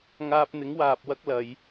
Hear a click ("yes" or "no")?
no